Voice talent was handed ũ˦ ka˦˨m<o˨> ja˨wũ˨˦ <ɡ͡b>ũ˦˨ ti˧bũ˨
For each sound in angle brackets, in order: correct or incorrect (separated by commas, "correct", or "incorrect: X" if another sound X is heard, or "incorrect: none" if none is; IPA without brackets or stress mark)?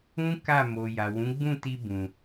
correct, correct